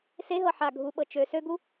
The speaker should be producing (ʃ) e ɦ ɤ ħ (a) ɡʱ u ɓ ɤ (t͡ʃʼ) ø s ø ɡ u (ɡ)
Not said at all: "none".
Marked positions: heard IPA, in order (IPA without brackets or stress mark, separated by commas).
s, a, t͡ʃ, none